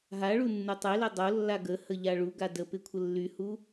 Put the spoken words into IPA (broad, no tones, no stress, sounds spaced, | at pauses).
ɦ a ɭ u nː u tˤ e l e dˤ o lː a ɡ ə h ə ʎ a ɭ u ɡ a d ə p ɪ kʷʰ ə lː y h u